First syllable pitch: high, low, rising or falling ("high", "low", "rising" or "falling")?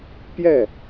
falling